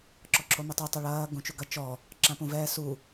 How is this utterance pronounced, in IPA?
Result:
ǁ ɔ ǁʰ o m ʊ tˤ u tˤ ʊ ɭ ɐː ɡ ũ t͡ʃ u ɡ ɐ t͡ʃ ɔ | ǁ ã p ũ v ɛː s u

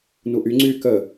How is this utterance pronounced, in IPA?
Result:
n u ʔ y ŋ͡ǀ yː k ə

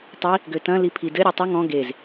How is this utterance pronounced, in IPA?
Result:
tˤ i | ɡ ø t ɐ̃ l i pʰ i d ɘ ɾʲ ø tˤ ʊ ŋ ɔ̃ ɡ e z

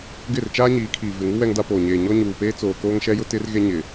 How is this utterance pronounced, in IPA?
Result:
ɡ ɪ˦˨ r t͡ʃ aː˦ ɲ iː˨˦ kʰ iː˨ v ɪ˨ ŋ u˦ w ɛ˦ ŋ d a˦ p oː˨ ɲ eː˨ ɲ ɔ˦ ɲ uː˨ p eː˦ t͡s oː˨ k oː˦ ŋ ʃ ɛ˦ j ʊ˦ t ɪ˦ r ɣ e˦ ɲ ɪ˨

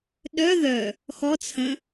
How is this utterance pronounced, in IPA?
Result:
ɗ œ ð œ | x ɔ t͡sʰ ə̃

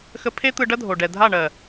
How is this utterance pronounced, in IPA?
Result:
x ə˧ pʰ e˦ t̪ ɯ˧ ɖ ɐ˦ dʱ o˨ ɖ ɛ˨ dʱ a˦˨ ɳ ɜ˨

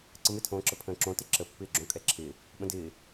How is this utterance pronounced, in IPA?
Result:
ǀ ə m ɪ tʰ õː ǁ ə pʰ ə̃ː ǁ õ t ɪ ǁ ə pː ɪː ɡ͡ǁ õ kʼ ɛ ǁʰ ɪː | ɓ ə̃ d ɪː

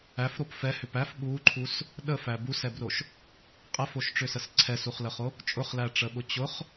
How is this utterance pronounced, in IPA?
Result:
æ f ɾ o p f ɛ h ʏ p æ f ɓ u ǃʰ u s | ɗ ə f æ b u s ɛ b r o ʃ | qʼ ɛ f o ʃ ʈ͡ʂ ʏ s ə s ǀʰ ɛ s u χ l ə χ o | t͡ʃʼ ʊ χ l æ ʈ͡ʂ ə ɓ ʊ t͡ɕ ʊ χ

